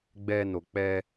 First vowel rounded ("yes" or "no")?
no